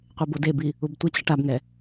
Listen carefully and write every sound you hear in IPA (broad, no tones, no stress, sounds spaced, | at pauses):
qʷ e b o d e b i | u b tʷ ɛ t͡ɕ ʌ ʈ a b ŋ ɛ